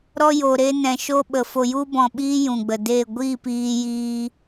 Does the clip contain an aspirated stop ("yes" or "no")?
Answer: no